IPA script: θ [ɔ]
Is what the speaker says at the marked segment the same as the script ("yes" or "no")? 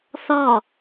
yes